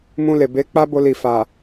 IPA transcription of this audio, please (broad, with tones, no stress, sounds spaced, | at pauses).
m ũ˧ l e˨ b e˨˦ k͡p a˦ b o˧ l i˨ f a˨